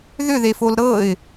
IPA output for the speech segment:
ð ʏ ð e f o l ɾ ɤ ɪ̯

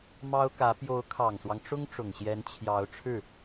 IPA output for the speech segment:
m ɑ˥ ʊ̯ k ä˧˥ p j o˧˥ ʊ̯ kʰ ɑ˨˩ ŋ s w ɑ˦ ŋ ʈ͡ʂ ʊ˥ ŋ ʈ͡ʂ ʊ˨˩ ŋ ɕ j ɛ˧˥ n t͡ɕʰ j ɑ˧˥ ʊ̯ ʈ͡ʂʰ ɻ̩˥˩

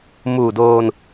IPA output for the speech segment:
m uː˨˩ d oː˧ n

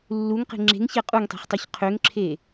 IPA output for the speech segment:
lː u ŋ q e̤ ŋ͡ǁ e̤ ŋ ç ɛ qʼ u ŋ tˤ e̤ χ tˤ ø ç qʰ ø ŋ ǁʰ e

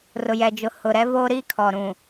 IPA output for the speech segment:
r ʊ˨ j ɛ˨ d͡ʒ ʊ˨ h ʊ˨ ɾ ɛ˦ v oː˦ ɾ i˦ kʰ ɔ˨ ɾ ũ˨

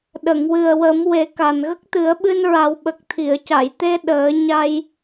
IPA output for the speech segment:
ɗ ə˨˩˨ ŋ w ɨ˨˩ ə̯ w ə˨˩˦ m w e˨˩˦ k a˨˩ n ɣ ə˦˥ k̚ t̪ ɨ˨˩˦ ə̯ ɓ ɨ˧ n ɹ a˨˩˦ w ɓ ə˨˩ k̚ t̪ʰ i˨˩˨ ə̯ c a˨˩˨ j t̪ e˧ ɗ əː˨˩˦ ɲ a˧ j

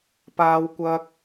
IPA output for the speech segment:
p aː˥ w kʷ ɐ˥ k̚

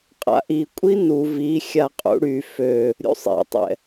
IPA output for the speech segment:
qʼ a̰ ʔ i kʷʼ i n u v i xʲ a qʼ ṵ ɽ y f ø | ɾʲ ṵ sˤ ḭ tˤ ɛ̰

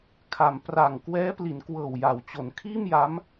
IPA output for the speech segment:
kʰ a˩˦ m p r a˨˩ ŋ k w ɛː˦˥ p l i˩˦ n k w ɤː˨˩ w j a˩˦ w t͡ɕ o˩˦ n kʰ iː˥˩ m j a˦˥ m

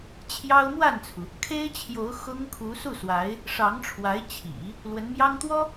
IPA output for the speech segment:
t͡ɕʰ j ɑ˥ ʊ̯ m w a˥˩ n t͡sʰ u˩ | kʰ e˥ ɪ̯ t͡ɕʰ j o˧˥ ʊ̯ x ʊ˥ ŋ kʰ u˧˥ s u˥˩ s w a˧˥ ɪ̯ | ʂ ɑ˧˥ ŋ ʈ͡ʂʰ w a˧˥ ɪ̯ t͡ɕʰ ḭ˨˩˦ | l w ə˧˥ n m j ɑ˥ ŋ t̪ w ɔ˥

